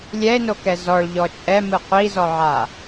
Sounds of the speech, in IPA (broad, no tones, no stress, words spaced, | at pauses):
lʲɛe̯nokɛ zɔɭʎɔ t͡ʃʼɛmɯ qʷizɔʕa